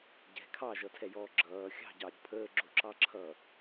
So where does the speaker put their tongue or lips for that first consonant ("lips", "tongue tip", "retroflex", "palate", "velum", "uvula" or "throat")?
palate